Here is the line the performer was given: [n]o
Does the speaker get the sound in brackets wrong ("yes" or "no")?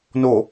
no